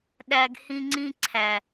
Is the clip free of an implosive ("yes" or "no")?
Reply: no